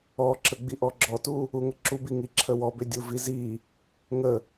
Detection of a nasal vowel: absent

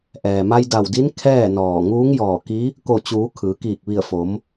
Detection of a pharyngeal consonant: absent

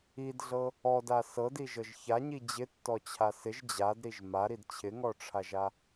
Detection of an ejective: absent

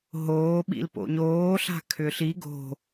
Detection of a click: absent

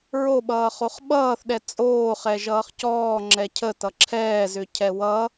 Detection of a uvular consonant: present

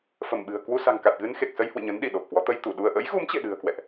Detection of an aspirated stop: absent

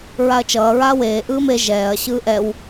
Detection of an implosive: absent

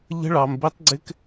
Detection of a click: present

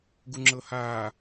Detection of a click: present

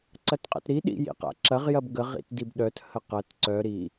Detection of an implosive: present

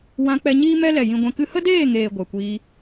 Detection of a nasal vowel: present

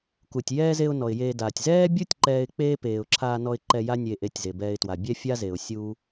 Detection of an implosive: absent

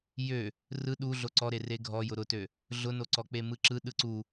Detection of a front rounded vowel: present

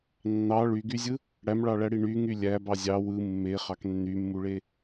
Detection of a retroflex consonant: present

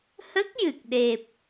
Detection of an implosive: present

